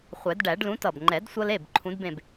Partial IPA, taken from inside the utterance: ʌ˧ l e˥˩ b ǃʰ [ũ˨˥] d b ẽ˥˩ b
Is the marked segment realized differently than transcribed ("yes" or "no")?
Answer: no